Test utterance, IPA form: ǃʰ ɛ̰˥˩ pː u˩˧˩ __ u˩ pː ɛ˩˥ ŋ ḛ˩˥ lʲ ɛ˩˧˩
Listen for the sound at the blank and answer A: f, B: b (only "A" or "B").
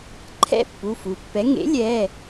A